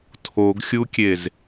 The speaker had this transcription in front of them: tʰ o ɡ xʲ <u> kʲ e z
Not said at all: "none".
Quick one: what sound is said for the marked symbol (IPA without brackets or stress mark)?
u